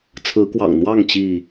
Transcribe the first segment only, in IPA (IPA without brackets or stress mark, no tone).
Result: t͡sʰ